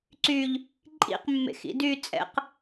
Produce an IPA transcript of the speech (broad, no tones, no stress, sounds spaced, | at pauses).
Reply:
ǀ y ʎ | ǃʼ ḭ q mː ḛ x ḭ d y t͡sʼ ɛ̰ q